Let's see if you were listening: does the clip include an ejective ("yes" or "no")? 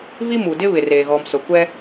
no